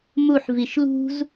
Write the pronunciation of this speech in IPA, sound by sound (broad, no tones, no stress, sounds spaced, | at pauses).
m u ħ v i ʃ l ṳ z